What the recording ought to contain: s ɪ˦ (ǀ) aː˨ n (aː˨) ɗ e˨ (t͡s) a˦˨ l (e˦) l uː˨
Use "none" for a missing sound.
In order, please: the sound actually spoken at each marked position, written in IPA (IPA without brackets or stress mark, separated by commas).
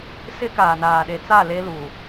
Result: k, aː˨, t͡s, e˦